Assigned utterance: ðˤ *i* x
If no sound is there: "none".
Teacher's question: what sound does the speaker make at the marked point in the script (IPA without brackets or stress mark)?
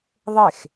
e